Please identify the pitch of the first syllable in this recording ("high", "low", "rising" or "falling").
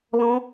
high